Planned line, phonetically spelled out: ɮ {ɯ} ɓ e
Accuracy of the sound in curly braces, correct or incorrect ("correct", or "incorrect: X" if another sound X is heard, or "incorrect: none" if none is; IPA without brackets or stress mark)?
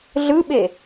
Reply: correct